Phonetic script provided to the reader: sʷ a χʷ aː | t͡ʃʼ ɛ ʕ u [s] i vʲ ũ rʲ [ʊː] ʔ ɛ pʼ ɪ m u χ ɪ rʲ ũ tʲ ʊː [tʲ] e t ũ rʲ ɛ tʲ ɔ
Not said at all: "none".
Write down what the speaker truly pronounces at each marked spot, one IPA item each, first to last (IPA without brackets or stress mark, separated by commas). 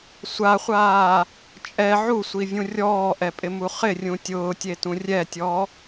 sʷ, ɔː, tʲ